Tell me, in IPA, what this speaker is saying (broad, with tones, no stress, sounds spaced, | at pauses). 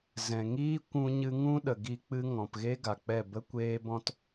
z ɛ̃˨ ŋ iː˦ kʷ ũ˧ ɲ ɨ˧ ŋ ũ˦ ɗ ə˨ ɡ i˦ k͡p ɨ˦ ŋ ɔ̃˧ p ɣ e˦ ɡ a˨ k͡p ɛ˦˨ b ə˦ kʷ eː˦ b ɔ̃˦ t